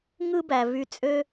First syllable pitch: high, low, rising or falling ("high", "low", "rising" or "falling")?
high